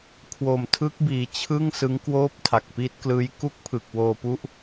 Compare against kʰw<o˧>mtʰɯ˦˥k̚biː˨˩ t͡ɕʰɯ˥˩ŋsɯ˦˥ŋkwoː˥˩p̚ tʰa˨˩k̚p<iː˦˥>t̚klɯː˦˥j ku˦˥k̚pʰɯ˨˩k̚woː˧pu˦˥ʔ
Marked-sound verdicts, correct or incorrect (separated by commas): incorrect, correct